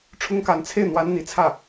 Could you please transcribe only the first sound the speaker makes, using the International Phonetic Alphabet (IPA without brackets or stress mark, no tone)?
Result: ʈ͡ʂʰ